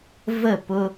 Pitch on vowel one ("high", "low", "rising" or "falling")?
falling